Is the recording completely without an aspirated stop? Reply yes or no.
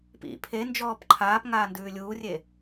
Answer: no